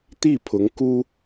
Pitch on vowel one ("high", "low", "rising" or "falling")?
falling